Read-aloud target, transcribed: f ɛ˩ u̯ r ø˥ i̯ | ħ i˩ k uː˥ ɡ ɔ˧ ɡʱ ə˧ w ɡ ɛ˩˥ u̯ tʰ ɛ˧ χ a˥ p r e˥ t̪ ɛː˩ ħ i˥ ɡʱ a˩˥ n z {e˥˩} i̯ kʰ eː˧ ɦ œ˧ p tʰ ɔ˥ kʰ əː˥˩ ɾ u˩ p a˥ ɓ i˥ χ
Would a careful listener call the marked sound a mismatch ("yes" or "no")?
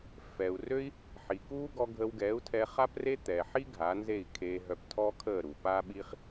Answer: no